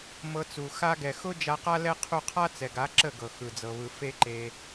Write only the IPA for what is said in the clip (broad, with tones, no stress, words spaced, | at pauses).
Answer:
mɤ˧t͡su˨ xa˧ɡɛ˨ xʊ˦ d͡ʒa˧qa˦ lɛ˦qʰu˦˨ qʰa˦t͡sɛ˨ɡa˨˦ ǁə˦˨ɡɤ˨ xɯ˨d͡zɤ˨βɯ˨ fe˦ǃe˧